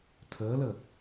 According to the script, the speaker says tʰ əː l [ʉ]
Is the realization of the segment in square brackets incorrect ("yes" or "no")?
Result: yes